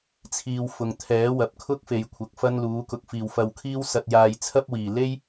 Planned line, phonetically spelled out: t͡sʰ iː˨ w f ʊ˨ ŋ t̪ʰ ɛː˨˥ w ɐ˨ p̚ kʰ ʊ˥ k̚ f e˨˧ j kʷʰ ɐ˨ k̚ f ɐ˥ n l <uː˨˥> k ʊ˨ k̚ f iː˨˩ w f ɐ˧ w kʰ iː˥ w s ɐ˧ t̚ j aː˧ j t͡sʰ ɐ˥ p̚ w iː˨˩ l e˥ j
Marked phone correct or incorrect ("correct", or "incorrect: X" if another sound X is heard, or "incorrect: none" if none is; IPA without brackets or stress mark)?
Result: correct